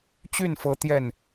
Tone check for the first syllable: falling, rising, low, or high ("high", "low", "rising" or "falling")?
falling